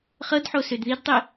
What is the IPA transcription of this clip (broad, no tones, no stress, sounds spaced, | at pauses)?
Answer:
χ ɤ d ħ o s ø d ð i d tˤ i